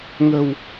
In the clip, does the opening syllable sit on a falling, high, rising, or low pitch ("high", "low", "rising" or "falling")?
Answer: low